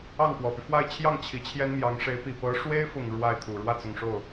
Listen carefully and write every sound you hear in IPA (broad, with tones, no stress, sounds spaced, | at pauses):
ɑ˥˩ ŋ p w ɔ˨˩ p y˦ f w a˥˧ ɪ̯ t͡ɕʰ j ɑ˥˩ ŋ t͡ɕʰ i˧˥ t͡ɕʰ j ɛ˥ n m j ɑ˧˥ ŋ ʂ e˧˥ ɪ̯ p i˨˩ p ɤ˧˥ ʂ w e˥ ɪ̯ f ʊ˨˩ ŋ ɻ w a˥˩ ɪ̯ t̪ʰ u˨˩ ɻ w ä˥˩ t͡s ʊ˨˩ ŋ ʂ o˥˩ ʊ̯